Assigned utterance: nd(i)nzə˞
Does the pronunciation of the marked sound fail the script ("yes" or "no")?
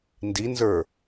no